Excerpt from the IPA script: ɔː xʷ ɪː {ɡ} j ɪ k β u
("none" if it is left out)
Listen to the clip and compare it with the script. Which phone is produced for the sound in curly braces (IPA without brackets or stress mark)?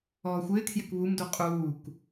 kʰ